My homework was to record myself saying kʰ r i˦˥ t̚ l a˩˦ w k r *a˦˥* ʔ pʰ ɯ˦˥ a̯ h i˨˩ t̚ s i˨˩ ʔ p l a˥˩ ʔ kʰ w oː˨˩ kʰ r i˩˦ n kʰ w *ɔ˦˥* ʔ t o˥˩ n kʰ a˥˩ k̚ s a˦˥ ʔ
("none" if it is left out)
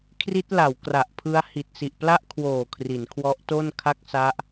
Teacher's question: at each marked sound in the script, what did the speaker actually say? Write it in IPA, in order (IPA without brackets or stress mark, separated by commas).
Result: a˨˩, ɔ˦˥